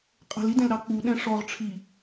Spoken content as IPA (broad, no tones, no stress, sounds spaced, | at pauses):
qʼ ə̤ l i d ɛ̃ l ɾ ɑ k͡p u ɗ ɛ̃ ʂ ɔ ʁ ʈ͡ʂʰ i